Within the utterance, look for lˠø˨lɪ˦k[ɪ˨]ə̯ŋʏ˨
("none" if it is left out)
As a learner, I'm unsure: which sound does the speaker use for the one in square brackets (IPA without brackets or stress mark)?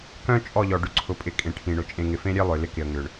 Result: ɪ˨